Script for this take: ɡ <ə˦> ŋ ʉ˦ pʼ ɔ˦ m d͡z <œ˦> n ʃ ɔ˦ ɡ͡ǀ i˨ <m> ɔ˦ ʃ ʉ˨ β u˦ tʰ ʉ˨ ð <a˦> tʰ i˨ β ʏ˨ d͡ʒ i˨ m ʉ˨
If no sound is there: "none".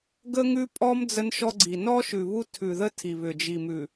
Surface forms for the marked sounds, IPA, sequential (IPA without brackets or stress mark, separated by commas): ə˦, ə˦, n, ə˦